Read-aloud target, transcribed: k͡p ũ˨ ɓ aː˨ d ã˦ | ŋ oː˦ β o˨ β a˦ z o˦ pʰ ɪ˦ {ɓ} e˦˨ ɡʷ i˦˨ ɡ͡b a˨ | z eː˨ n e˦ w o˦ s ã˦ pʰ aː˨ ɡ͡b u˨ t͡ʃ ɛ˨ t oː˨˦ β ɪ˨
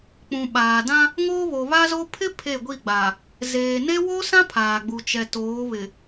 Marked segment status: incorrect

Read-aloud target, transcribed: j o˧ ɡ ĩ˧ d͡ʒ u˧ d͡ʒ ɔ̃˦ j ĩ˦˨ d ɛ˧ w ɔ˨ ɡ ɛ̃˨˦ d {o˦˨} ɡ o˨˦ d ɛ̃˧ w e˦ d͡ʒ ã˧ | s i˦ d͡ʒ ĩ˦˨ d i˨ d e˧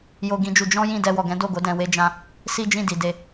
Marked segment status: correct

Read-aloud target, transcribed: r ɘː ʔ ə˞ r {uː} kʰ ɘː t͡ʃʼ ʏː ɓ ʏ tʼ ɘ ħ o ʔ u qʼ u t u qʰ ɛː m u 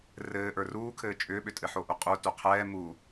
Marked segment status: correct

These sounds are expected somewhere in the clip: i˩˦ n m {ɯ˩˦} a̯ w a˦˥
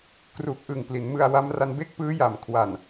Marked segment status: incorrect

